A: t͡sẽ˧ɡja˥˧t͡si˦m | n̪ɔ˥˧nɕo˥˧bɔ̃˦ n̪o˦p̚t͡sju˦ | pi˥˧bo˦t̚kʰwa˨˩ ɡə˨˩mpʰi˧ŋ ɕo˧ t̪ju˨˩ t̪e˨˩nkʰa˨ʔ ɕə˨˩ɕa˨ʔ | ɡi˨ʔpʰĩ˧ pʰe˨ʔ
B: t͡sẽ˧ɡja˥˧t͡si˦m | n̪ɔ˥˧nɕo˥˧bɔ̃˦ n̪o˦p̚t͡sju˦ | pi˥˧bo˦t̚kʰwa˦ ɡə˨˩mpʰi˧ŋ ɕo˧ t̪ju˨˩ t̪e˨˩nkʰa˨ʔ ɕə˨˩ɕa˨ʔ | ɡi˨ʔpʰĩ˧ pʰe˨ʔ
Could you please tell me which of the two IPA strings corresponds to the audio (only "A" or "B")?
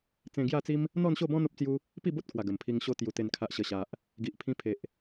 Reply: A